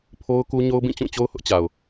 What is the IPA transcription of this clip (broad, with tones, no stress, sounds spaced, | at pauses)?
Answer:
pʰ o˦ ʊ̯ k u˦ ɲ o˦ ʊ̯ b ĩ˦˨ t͡ɕ ũ˦˨ t͡ɕ o˦ ʊ̯ h ʊ˦ ʔ t͡ɕ a˨ ʊ̯